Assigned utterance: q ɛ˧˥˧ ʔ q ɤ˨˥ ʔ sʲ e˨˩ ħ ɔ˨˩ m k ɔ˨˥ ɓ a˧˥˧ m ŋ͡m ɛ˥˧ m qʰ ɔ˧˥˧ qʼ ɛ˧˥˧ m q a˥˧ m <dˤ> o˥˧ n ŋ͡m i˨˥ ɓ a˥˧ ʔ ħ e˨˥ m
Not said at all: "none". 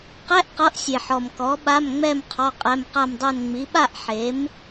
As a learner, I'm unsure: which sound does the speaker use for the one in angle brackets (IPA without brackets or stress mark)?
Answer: dˤ